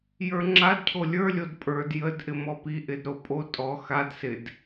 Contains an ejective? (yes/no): yes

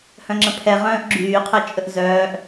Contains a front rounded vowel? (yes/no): yes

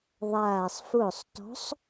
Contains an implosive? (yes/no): no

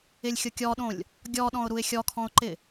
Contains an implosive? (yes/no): yes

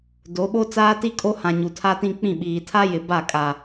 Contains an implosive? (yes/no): yes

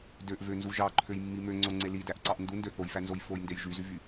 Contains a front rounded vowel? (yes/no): yes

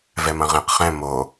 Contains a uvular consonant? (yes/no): yes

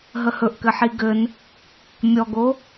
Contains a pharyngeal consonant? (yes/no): yes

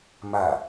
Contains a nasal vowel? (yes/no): no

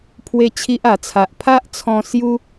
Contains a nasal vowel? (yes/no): yes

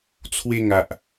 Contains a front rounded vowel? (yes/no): no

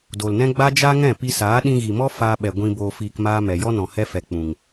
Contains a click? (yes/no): no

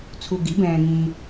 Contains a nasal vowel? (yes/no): yes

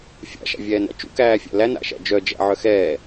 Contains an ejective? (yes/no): no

